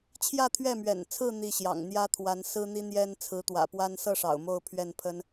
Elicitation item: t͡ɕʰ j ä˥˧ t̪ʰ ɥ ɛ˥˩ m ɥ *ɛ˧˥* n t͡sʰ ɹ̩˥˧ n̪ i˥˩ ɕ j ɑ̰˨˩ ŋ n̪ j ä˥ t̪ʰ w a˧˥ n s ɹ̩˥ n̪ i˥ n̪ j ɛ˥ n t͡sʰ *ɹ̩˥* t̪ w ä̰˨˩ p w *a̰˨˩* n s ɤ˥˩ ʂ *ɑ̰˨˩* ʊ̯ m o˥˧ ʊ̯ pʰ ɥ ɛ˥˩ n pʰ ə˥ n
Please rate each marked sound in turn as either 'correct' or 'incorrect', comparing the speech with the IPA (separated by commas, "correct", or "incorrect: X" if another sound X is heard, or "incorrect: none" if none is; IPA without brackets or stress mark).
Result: incorrect: ɛ̰˨˩, incorrect: ɹ̩˧˥, incorrect: a˥, correct